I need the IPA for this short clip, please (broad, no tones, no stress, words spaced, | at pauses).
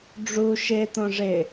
ɖ͡ʐu ʃe t̪õʐɪ